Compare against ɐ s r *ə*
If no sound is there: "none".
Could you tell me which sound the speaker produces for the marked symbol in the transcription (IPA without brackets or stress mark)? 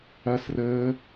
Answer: əː